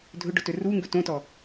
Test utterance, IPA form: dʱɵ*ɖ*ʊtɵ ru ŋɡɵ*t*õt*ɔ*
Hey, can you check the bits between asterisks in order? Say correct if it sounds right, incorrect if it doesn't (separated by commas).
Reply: correct, correct, correct